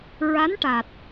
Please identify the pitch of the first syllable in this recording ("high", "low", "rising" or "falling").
rising